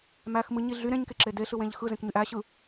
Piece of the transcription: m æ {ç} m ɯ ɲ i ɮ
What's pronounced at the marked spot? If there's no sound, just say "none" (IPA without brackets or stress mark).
x